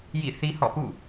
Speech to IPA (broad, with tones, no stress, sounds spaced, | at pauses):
j ḭ˦˨ θ i˦ h ɔ̰˦˨ p ṵ˦˨